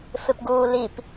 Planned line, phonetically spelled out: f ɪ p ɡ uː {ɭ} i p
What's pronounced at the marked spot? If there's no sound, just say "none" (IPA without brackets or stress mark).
l